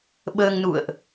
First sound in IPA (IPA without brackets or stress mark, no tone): ɓ